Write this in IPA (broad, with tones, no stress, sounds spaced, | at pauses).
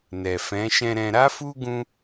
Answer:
n ɛ˨ f ɛ̃˨˦ ʃ ɛ̃˧ ɾ ɛ̃˧ ɾ a˦ f u˦ ɡ ũ˦